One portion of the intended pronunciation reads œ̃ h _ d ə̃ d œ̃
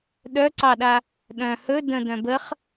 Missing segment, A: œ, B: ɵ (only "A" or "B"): B